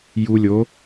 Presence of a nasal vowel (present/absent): absent